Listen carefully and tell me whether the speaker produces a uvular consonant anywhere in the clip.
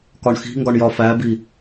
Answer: no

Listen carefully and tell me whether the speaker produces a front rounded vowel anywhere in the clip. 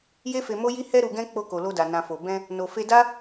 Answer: no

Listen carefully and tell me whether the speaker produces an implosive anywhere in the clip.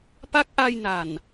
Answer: no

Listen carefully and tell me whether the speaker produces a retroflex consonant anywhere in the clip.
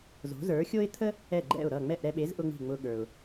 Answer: no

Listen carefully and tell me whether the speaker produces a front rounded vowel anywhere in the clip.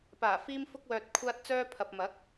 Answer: yes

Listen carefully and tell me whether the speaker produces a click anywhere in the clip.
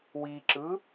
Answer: yes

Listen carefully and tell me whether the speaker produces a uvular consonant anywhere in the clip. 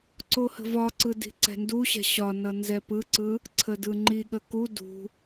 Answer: no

